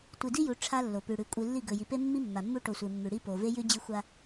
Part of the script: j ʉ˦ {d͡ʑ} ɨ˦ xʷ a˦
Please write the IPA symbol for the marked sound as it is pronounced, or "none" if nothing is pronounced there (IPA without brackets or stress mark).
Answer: d͡ʑ